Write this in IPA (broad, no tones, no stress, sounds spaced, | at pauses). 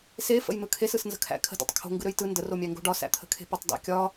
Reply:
s e f ə̰ j n̪ ɯ kʰ e s ɯ s n z ə̤ kʰ æ̰ kʰ ə̤ d ḛ tˤ kʰ o̤ ŋ ɡ ɯ ɾ ø j t ɯ n d ə r o mʲ æ ŋ ɡ o̤ ɖ ɒ s æ̰ t̪ʰ ə̤ kʰ e̤ p ə tˤ d æ̰ kʲ ɒ